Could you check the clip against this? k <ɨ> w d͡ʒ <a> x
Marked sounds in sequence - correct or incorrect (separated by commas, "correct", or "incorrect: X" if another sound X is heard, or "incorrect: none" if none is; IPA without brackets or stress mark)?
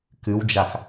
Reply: correct, correct